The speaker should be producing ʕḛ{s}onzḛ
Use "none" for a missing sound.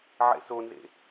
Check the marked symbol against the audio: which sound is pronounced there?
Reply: s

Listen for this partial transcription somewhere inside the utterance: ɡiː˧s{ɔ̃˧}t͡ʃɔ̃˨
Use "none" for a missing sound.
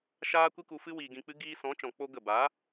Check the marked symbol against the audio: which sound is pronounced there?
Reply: ɔ̃˨˦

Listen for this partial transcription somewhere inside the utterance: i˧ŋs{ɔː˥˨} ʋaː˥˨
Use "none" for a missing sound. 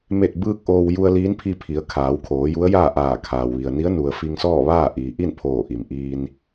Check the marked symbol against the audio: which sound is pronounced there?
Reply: ɔː˥˨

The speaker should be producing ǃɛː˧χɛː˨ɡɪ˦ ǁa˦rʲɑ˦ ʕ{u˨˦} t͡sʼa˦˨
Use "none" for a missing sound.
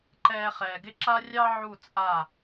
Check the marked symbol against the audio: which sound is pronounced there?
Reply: u˦˨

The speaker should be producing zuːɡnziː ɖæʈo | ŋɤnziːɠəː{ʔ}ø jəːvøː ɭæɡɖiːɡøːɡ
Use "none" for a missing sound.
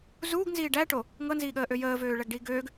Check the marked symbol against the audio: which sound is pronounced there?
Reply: ʔ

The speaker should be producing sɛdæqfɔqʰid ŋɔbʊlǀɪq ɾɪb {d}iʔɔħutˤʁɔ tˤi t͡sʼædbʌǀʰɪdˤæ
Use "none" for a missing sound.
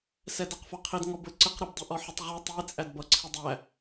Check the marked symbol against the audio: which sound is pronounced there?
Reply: dˤ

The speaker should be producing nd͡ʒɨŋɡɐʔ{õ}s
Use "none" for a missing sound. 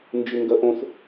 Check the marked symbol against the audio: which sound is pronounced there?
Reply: õ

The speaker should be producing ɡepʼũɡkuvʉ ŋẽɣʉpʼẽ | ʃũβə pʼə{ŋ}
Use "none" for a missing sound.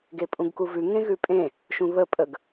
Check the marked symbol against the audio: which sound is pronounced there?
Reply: ɡ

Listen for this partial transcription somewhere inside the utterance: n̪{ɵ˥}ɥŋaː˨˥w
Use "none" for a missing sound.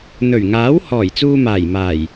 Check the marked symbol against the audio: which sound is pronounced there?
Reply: ɵ˨˩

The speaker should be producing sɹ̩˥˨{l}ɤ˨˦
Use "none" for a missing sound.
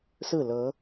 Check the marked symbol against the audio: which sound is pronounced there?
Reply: l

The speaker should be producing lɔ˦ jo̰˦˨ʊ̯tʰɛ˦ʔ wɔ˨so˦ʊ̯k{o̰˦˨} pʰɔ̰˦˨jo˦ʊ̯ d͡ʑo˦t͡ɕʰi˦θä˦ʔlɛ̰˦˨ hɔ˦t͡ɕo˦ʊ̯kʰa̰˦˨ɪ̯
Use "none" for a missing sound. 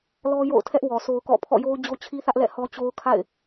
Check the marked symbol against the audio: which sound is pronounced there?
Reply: ɔ̰˦˨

